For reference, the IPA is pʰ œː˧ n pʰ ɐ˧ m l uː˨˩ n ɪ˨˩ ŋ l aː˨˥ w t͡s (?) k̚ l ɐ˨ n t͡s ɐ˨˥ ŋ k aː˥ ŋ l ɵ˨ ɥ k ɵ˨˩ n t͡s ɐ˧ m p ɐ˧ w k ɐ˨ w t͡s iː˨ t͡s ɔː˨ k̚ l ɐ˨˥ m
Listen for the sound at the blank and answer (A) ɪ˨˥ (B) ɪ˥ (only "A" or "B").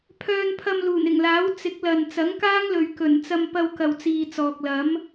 A